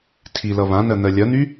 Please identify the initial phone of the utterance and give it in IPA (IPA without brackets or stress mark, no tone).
tʰ